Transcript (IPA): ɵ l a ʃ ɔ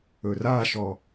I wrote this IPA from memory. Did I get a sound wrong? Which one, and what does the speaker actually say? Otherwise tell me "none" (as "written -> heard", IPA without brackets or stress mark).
l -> r